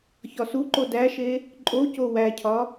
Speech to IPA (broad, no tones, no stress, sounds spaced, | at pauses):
ç ɒ s u ǃ o d æ ʃ e | ǃʼ o c o w æ cʰ ɒ